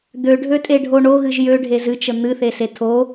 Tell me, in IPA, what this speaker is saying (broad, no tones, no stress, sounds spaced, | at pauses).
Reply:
d̪ ø ɖʱ ø tʼ e ɖʱ o ɳ o ɣ ɨ ʒ j ø ɖʱ e z ɨ t͡ʃ ə n̪ ɨ θ e s e tʰ o